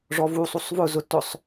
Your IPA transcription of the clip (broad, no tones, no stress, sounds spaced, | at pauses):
ʐ ɔ v u sˤ u sˤ v ʊ z ʊ t ʊ sˤ